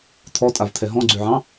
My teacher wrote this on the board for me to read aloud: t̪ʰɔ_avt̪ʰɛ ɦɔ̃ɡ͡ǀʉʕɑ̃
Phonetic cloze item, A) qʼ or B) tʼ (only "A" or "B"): B